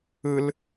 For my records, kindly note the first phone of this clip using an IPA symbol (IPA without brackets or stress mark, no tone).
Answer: ɯ